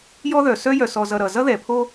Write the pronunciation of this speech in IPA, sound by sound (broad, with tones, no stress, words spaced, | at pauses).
jɔ˥ðœ˩ sœ˥jœ˨sɔ˨ zʌ˨ɾʌ˩ zʌ˥ðɛ˩pʰo˦